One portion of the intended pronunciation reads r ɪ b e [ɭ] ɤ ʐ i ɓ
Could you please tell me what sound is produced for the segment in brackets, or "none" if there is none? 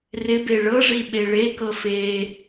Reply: ɭ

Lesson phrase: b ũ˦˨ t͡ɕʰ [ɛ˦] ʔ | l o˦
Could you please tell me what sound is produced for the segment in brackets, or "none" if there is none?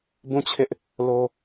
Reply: ɪ˦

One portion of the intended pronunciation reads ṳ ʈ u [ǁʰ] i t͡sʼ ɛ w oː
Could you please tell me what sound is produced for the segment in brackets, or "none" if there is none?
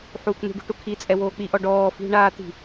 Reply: kʰ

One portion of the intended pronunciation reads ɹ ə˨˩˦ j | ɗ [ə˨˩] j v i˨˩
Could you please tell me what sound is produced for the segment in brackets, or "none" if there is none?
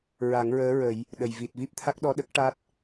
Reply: ə˨˩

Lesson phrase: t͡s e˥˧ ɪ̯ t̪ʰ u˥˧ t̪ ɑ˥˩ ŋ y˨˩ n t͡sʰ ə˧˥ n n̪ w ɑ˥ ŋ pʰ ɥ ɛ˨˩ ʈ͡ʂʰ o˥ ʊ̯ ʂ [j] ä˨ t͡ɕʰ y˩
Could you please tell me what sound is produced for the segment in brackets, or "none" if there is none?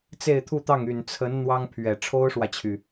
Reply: w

